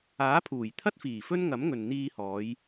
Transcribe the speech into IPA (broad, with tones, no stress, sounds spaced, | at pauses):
aː˨˥ pʰ uː˨˩ j t̪ʰ ɐ˥ t̚ f iː˨˩ f ɵ˥ n ŋ ɐ˨˥ m ŋ ɵ˨ n n̪ iː˧ h ɔː˨˧ j